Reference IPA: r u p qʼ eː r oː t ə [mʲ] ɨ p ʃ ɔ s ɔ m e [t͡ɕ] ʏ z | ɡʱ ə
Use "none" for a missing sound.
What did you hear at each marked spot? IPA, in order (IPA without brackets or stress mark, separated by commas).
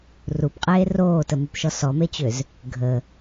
m, t͡ɕ